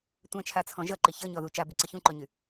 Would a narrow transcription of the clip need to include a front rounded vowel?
yes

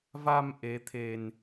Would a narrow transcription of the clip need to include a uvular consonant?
no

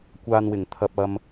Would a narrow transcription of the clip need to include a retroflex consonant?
no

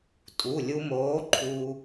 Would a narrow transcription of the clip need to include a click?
yes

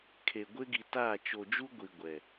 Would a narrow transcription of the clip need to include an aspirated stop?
yes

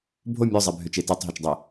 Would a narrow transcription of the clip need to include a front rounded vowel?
yes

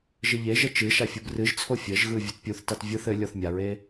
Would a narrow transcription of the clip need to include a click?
no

